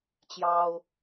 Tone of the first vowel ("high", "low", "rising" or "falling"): high